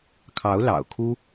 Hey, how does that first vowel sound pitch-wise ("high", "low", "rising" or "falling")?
rising